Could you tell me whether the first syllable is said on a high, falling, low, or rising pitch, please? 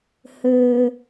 high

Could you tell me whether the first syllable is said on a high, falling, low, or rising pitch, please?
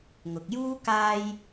low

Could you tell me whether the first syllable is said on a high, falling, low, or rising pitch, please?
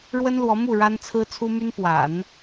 high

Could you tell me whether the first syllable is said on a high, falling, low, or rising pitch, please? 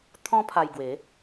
high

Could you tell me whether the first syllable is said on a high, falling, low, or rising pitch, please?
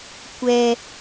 low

